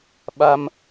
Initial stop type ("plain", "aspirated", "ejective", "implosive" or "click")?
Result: implosive